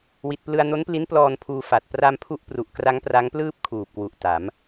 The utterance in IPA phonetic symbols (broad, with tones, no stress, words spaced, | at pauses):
wi˨˩t̚plɯ˧a̯ no˦˥npli˦˥nplɔː˧n pʰuː˧fa˨˩t̚ pra˧mpʰu˦˥ʔpru˨˩ʔkra˦˥ŋ pra˦˥ŋplɯː˥˩p̚ kʰuː˨˩p̚kwu˨˩ʔta˩˦m